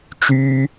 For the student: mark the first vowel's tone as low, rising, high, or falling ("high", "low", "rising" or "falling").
high